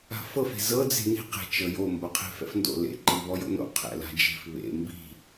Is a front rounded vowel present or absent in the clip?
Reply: absent